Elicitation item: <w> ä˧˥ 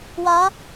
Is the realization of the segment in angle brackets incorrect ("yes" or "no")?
no